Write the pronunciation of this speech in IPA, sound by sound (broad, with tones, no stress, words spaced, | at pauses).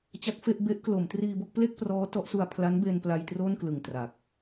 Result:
t͡ɕa˦˥k̚fe˥˩ʔ be˦˥ʔklo˩˦m triː˧bo˥˩k̚ple˥˩k̚prɔː˦˥ tɔ˦˥ʔsu˧a̯ pʰla˦˥nbe˧npla˧j tro˥˩nklɯ˨˩ŋ tra˨˩k̚